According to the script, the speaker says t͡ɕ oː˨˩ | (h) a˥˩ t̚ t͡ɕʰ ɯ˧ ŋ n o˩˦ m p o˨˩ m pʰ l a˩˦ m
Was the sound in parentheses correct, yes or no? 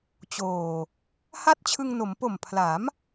yes